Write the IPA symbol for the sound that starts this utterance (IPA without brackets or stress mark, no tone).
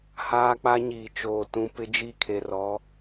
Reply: h